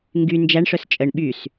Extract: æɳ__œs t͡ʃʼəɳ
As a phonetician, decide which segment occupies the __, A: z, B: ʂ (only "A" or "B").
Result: B